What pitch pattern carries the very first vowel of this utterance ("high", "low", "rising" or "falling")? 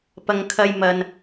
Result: low